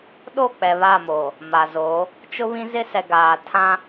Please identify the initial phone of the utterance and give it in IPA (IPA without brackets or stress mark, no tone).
ɗ